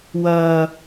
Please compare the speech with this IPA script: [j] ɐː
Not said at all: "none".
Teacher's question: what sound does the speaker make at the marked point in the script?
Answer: w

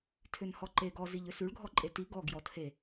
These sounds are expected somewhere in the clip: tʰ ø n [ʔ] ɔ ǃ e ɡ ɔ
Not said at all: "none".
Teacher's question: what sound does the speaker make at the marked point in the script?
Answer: h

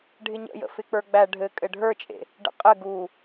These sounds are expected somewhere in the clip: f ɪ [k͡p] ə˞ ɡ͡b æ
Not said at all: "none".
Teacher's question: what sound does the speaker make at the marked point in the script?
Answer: k͡p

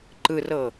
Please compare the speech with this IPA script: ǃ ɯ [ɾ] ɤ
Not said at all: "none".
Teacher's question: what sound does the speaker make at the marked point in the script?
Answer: r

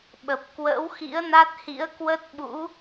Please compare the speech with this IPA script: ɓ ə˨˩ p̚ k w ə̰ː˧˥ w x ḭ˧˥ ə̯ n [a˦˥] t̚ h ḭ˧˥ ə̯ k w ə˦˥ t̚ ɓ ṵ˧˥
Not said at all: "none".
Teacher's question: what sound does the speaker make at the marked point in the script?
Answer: a˦˥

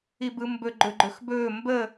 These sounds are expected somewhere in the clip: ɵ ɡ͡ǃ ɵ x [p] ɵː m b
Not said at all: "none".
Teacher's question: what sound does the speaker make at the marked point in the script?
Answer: b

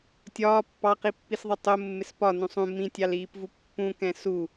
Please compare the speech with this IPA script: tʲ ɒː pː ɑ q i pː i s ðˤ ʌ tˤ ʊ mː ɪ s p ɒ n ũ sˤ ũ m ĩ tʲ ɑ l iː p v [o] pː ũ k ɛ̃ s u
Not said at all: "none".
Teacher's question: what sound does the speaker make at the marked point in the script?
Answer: u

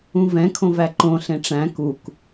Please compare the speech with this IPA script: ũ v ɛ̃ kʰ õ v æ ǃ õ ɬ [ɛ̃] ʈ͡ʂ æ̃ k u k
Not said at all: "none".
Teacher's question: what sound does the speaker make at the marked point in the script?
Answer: ẽ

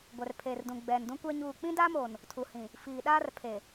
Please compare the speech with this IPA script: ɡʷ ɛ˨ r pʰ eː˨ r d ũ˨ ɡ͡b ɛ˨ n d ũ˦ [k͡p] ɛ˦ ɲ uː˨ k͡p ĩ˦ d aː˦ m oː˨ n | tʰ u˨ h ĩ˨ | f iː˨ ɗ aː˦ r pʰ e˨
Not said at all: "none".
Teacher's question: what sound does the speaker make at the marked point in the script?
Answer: kʷ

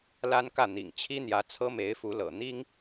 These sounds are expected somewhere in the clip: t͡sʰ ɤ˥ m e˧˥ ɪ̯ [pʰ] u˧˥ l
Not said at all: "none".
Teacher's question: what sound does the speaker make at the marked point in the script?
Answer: f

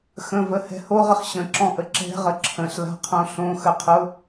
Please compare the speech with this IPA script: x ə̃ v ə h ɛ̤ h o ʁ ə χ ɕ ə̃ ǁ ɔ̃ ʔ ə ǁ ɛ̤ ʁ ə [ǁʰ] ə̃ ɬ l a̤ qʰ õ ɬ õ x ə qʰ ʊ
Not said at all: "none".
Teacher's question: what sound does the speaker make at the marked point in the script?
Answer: ǁʰ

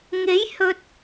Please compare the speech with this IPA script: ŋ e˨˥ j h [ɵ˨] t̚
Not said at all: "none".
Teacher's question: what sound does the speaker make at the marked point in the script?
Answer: ɵ˨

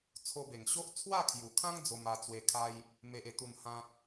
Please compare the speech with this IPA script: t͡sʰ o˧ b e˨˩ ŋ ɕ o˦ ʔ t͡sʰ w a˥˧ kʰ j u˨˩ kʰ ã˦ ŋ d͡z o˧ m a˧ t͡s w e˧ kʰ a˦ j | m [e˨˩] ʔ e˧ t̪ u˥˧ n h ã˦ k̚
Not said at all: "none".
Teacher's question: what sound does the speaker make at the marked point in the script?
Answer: e˦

